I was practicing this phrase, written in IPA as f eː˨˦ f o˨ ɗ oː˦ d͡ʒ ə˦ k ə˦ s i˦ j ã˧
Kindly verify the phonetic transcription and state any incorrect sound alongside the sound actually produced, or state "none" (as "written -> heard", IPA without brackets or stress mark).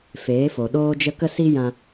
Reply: none